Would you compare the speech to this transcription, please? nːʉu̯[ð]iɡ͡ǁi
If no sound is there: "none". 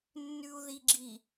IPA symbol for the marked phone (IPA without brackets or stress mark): ð